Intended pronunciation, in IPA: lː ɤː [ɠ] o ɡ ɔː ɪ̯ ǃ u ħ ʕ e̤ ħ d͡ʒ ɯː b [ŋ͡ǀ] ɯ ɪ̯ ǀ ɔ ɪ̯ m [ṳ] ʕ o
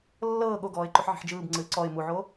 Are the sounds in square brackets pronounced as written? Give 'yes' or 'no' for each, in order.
yes, yes, no

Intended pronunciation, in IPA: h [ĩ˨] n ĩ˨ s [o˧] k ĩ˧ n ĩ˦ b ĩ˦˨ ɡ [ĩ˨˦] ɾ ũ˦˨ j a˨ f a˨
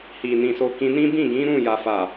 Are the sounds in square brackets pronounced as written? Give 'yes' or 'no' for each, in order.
no, yes, yes

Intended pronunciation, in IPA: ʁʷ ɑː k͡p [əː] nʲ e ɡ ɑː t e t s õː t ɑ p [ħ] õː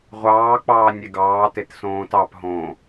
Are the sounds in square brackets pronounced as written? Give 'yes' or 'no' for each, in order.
no, no

